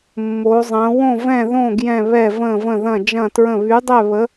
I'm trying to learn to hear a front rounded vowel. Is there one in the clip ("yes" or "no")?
yes